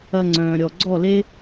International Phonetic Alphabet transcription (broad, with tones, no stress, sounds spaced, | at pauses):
ɐ˧ ŋ͡ǀ œ̃ː˨ ɾʲ ɔ˨ ɡ͡ǀ ɔ˦˨ l e˦